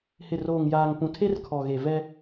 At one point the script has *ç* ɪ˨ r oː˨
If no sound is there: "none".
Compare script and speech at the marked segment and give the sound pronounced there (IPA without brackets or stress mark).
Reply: h